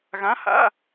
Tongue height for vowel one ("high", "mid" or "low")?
low